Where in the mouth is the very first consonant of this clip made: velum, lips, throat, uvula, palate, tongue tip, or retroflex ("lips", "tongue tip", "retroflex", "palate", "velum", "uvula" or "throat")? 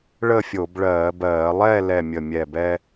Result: retroflex